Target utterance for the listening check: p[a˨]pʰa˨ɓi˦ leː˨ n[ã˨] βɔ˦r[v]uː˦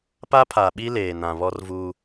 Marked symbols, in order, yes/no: no, yes, yes

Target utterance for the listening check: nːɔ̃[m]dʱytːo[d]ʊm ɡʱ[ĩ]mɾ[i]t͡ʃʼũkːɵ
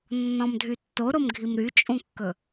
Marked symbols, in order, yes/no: yes, no, no, no

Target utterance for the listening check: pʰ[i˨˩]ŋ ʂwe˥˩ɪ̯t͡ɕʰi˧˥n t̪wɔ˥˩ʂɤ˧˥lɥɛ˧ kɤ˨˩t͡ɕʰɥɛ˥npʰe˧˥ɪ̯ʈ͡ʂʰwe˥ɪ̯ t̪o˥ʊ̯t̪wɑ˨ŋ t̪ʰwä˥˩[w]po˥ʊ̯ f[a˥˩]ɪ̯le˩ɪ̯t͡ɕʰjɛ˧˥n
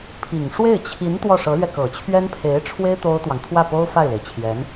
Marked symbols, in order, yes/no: yes, no, yes

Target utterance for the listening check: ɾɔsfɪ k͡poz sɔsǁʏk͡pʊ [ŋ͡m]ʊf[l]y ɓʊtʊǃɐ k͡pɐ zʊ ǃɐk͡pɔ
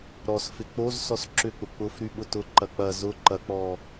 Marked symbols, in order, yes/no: no, no

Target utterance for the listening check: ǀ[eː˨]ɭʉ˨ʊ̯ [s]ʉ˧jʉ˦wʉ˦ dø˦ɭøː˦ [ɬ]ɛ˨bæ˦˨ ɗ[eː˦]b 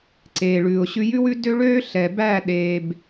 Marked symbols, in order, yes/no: yes, no, yes, no

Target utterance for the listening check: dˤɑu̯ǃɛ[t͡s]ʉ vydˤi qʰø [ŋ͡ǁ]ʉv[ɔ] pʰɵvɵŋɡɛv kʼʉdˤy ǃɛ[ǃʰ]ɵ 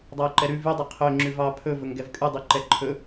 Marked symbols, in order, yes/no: no, yes, no, yes

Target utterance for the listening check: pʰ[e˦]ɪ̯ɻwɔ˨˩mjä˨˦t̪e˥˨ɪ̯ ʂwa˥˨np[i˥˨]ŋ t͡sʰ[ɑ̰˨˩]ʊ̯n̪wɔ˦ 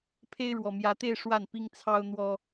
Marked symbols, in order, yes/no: yes, no, no

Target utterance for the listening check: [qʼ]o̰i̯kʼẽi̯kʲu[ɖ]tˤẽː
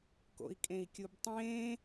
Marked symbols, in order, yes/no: no, no

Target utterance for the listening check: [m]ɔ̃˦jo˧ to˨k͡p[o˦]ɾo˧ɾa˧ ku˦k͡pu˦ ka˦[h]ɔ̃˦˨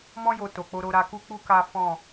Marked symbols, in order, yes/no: yes, no, no

